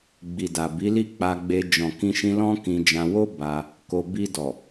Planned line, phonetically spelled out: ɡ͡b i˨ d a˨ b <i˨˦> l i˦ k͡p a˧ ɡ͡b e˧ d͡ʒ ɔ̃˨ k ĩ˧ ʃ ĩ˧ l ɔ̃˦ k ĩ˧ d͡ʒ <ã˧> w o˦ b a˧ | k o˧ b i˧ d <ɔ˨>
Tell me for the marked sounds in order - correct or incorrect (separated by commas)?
correct, correct, correct